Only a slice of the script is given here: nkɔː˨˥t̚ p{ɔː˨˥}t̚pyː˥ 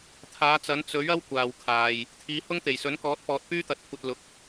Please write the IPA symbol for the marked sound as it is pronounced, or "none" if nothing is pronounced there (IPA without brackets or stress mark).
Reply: ɔː˨